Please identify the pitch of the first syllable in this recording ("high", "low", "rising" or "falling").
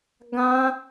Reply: high